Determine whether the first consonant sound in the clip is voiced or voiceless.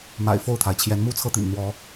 voiced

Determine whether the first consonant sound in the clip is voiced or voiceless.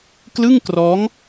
voiceless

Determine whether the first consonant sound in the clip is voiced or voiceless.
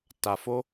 voiceless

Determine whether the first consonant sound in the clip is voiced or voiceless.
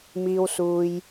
voiced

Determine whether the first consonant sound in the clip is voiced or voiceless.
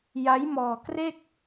voiced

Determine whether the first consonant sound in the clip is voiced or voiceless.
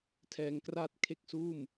voiceless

